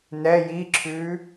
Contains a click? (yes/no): yes